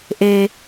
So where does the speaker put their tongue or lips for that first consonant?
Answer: throat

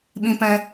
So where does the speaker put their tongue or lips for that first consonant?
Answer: lips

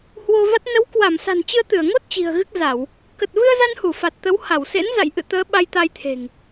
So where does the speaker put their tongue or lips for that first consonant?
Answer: throat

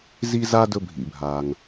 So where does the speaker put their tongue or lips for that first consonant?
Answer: tongue tip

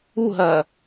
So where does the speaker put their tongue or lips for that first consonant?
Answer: throat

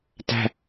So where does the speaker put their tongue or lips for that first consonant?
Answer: tongue tip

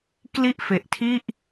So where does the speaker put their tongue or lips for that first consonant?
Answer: velum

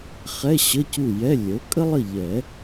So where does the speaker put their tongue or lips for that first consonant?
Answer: uvula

